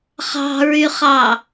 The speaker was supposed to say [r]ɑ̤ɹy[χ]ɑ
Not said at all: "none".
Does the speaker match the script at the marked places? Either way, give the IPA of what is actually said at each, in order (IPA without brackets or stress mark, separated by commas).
χ, χ